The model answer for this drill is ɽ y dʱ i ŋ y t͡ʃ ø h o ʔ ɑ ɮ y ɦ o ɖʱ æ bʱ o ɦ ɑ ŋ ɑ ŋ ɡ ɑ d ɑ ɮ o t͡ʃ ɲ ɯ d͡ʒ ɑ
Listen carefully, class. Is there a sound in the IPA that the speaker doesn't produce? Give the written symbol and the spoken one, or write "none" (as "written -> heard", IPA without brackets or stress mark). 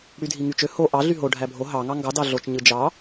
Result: none